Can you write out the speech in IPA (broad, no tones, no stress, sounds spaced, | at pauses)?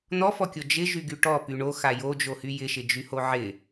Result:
n̪ ɔ f ɔ kʲ o d͡ʒ ɪ ʒ y ɡ y ʈ ɔ p y ɳ o x a j o d͡ʒ o h y j ɪ ʃ ɪ d͡ʒ y h o ʕ ɪ